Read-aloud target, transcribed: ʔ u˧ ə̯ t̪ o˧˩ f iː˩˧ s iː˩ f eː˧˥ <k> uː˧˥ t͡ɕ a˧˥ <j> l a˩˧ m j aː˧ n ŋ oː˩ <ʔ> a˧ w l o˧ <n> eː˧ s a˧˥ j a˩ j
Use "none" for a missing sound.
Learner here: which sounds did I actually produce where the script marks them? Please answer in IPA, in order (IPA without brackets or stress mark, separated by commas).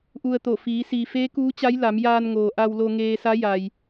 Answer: k, j, ʔ, ŋ